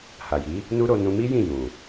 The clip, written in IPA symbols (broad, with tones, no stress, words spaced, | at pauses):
ha˨ji˨˦ | nu˦ɾo˧ nũ˧mi˦ jĩ˦˨ jũ˨